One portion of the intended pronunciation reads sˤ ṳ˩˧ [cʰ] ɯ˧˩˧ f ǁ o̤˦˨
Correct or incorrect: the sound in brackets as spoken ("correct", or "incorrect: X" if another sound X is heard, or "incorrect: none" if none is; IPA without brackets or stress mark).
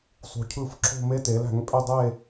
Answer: correct